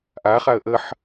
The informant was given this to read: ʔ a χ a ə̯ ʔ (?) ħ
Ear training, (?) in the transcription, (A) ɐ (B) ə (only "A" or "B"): B